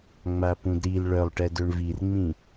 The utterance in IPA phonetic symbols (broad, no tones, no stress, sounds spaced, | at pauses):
ŋ͡m a p ũ d ɾ i l ɭ œ lˠ ʈ ɛ d ø ɳ v i r ŋ͡m ĩ